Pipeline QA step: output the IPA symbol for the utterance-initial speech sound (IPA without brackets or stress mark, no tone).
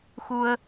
x